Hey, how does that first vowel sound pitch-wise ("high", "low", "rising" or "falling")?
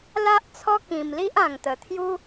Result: high